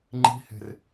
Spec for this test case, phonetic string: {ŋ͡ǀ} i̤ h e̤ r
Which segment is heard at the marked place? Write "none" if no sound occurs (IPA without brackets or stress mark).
ŋ͡ǃ